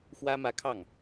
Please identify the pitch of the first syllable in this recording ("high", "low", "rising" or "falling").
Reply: high